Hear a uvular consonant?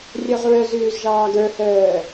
yes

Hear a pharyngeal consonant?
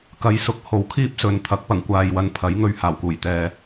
no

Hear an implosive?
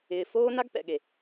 yes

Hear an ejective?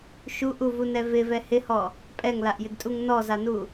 yes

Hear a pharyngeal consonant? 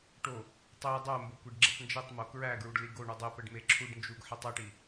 yes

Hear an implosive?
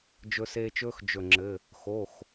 no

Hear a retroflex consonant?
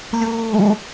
no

